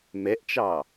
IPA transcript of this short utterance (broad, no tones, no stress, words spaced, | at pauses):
mɛʔt͡ʃɑ